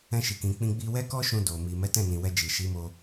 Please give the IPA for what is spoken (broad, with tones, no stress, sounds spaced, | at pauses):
ɛ̃˧ ʃ i˨ k ĩ˨ k͡p ĩ˧ ɡ͡b i˧ w ɛ˦ k ɔ˦ ʃ ũ˧ d o˨ m i˨ m ɛ˨˦ t ɛ̃˦˨ n ĩ˨ w ɛ˧ d͡ʒ i˨ ʃ i˨˦ m o˧